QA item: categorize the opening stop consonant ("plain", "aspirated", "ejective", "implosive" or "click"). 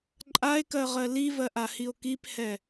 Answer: click